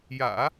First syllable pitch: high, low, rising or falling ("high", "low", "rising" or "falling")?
low